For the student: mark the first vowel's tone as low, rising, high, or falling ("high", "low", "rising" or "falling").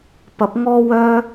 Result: rising